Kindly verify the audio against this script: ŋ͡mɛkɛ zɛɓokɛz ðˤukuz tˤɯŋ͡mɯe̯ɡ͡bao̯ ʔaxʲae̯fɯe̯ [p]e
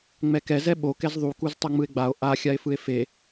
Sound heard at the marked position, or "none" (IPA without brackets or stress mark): f